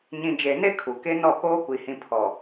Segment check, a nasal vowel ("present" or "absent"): present